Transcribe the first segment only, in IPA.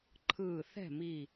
ǃʰ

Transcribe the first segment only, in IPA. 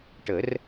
ʈ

